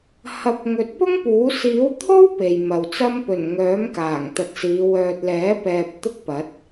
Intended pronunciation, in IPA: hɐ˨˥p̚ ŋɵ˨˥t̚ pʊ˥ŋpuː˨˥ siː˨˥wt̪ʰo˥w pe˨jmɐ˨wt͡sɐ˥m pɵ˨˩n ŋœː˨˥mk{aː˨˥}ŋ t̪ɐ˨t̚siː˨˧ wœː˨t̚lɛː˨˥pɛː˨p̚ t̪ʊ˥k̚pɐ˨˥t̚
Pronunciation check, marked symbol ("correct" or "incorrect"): incorrect